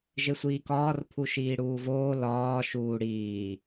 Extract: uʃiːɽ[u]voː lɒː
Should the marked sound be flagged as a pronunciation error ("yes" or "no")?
yes